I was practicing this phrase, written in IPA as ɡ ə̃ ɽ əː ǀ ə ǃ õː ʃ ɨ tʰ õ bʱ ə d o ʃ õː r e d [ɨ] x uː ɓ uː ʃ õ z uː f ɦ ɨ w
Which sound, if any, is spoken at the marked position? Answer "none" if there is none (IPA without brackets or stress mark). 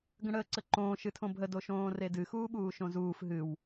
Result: ɨ